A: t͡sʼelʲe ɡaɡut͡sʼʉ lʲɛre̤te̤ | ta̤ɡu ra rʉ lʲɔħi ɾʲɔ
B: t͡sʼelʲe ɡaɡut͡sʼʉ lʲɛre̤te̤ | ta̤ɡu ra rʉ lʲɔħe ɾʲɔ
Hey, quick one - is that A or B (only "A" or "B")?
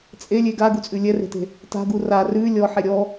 B